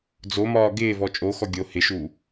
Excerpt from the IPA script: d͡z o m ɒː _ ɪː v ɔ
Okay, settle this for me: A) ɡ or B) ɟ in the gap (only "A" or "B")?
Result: A